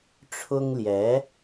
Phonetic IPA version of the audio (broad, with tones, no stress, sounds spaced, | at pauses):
ʈ͡ʂʰ ʊ˥ ŋ l j ɛ˧˥